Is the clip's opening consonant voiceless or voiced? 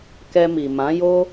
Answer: voiceless